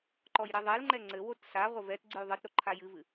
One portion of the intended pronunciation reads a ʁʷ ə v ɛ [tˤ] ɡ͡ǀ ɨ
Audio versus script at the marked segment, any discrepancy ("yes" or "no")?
yes